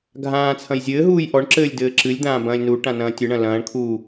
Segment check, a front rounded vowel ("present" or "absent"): absent